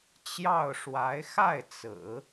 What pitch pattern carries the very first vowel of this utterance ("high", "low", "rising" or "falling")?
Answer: falling